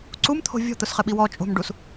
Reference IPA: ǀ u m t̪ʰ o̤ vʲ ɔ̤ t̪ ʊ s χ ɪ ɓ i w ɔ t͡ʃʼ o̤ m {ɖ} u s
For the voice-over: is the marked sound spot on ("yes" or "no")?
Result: yes